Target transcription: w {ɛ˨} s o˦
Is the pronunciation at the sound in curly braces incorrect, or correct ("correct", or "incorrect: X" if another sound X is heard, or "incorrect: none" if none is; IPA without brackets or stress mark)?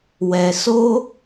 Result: correct